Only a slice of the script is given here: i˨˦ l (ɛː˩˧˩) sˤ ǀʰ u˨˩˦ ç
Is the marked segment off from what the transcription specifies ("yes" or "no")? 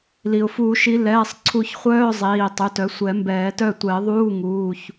no